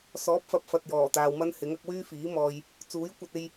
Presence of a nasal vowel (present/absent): absent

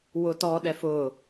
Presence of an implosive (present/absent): present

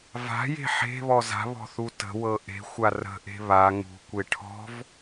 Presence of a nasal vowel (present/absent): absent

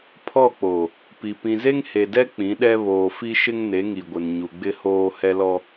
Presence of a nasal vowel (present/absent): present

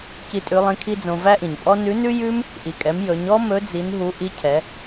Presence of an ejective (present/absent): present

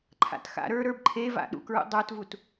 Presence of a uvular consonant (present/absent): absent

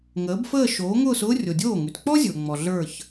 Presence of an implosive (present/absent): absent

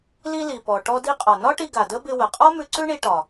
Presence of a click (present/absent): present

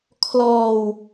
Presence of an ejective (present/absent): absent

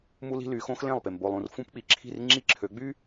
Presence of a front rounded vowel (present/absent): present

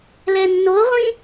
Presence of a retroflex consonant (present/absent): absent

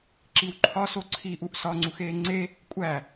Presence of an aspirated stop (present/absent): present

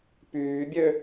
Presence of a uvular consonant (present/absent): absent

